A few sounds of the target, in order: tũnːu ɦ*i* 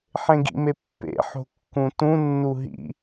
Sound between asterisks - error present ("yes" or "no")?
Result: yes